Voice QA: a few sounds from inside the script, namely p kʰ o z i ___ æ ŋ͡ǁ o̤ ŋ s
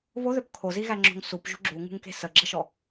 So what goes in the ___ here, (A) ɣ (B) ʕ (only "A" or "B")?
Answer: A